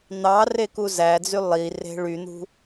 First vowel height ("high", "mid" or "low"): low